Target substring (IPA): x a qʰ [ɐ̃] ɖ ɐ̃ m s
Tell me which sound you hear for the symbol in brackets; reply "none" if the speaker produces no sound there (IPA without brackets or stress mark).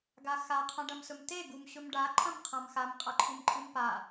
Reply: ã